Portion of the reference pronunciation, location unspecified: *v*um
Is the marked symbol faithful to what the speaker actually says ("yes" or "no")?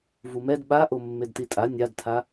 yes